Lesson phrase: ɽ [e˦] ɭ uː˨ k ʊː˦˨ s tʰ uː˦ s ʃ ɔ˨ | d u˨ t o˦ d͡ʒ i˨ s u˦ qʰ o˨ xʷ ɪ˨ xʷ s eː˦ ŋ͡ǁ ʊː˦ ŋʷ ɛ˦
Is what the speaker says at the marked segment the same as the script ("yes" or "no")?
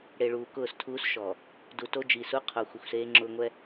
no